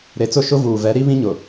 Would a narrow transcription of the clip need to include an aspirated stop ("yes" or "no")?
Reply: no